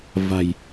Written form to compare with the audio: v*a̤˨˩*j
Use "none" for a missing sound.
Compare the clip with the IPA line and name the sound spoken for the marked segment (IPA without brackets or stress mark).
a̤˨˩